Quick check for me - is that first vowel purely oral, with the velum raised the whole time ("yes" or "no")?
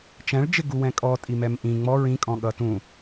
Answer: no